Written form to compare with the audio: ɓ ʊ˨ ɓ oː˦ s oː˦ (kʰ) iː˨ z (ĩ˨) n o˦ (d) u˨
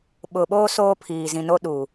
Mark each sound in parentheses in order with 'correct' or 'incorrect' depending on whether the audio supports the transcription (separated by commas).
incorrect, correct, incorrect